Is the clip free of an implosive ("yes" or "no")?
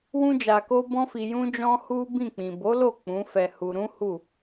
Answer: yes